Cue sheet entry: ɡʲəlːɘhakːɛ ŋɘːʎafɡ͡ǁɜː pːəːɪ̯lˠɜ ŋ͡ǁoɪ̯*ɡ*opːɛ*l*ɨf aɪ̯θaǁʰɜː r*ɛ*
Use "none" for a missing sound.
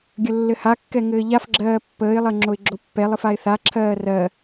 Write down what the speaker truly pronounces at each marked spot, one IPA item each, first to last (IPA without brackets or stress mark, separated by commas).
ɡ͡ǁ, lˠ, ɜ